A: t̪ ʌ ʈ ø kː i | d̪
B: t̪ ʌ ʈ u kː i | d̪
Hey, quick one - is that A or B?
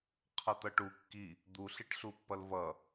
B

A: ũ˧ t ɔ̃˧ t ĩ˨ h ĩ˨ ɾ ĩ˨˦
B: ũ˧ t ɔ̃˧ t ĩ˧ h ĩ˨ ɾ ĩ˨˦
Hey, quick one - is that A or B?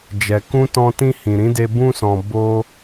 B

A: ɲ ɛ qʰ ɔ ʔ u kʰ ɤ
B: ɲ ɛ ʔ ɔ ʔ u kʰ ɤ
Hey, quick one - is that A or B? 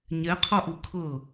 A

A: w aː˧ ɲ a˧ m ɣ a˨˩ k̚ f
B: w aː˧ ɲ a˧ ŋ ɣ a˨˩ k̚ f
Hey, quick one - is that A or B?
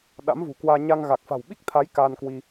B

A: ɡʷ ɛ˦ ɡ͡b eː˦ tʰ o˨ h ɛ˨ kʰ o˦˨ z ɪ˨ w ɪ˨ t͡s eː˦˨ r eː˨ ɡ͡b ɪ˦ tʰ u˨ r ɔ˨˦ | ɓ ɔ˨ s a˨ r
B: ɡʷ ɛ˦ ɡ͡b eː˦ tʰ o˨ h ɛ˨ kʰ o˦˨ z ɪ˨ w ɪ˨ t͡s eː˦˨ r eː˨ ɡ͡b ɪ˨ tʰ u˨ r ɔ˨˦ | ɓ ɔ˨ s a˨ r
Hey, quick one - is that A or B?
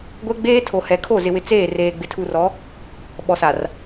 B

